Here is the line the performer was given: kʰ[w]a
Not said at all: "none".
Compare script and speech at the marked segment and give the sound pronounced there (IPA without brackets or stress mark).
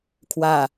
w